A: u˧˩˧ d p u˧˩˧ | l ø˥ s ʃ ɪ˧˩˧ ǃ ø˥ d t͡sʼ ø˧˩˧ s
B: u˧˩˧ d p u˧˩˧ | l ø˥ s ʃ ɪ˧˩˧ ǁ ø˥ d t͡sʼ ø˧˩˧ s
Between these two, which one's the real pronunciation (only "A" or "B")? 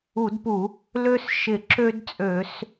B